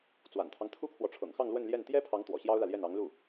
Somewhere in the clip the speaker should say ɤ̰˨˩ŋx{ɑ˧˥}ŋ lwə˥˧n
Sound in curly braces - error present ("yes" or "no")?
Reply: yes